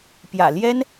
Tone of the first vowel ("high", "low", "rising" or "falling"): low